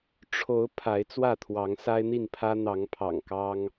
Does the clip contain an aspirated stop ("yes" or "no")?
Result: yes